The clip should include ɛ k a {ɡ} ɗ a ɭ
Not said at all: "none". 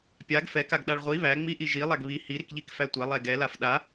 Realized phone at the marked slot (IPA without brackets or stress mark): ɡ